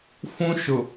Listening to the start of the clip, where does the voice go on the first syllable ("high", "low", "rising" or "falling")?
high